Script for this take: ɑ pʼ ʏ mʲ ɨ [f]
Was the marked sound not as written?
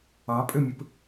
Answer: yes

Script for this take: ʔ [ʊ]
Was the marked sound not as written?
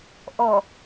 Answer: yes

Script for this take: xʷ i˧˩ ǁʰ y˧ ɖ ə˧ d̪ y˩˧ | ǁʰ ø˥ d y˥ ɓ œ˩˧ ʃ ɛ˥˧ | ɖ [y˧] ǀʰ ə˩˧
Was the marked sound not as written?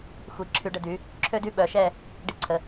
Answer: yes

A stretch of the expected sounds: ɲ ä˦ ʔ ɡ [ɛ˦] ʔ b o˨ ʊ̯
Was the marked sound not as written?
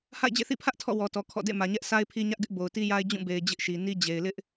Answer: yes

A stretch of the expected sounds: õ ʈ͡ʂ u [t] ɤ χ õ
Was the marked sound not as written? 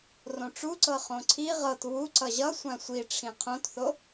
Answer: yes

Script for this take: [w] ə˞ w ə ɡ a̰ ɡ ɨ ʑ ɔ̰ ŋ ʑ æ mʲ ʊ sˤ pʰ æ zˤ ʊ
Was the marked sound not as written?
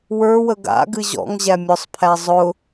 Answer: no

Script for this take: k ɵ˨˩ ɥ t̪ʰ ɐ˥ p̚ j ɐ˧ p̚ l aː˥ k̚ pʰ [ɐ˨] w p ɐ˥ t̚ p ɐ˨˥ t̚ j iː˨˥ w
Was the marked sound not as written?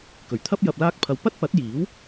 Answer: yes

